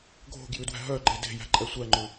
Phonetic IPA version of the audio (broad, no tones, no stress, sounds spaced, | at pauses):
ɡʱ o̤ ɡ j ʉ d w æ̤ ɦ œ ɡ͡ǃ e d e̤ j æ̤ ǃʼ ɛ sʷ æ ŋ͡ǃ ʉ